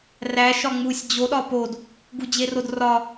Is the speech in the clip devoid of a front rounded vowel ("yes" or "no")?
yes